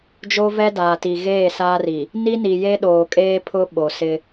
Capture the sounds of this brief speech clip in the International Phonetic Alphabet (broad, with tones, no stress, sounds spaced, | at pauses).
d͡ʒ o˦ v ɛ˦ d aː˨ t i˨ ɣ eː˦˨ s aː˦ r i˨ | n i˦ n i˨ j e˦ ɗ oː˨ kʼ eː˦ pʰ ʊ˦ ɓ o˨ s ɪ˦